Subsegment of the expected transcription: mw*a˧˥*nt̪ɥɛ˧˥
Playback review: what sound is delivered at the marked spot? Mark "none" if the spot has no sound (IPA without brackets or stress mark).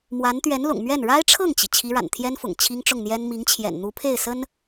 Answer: a˧˥